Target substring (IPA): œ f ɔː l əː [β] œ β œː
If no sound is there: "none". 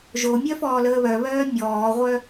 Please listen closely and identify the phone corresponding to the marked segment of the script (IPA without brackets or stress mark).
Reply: β